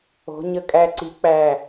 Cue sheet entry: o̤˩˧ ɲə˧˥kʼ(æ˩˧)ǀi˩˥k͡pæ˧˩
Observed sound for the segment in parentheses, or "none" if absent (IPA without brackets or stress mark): æ˧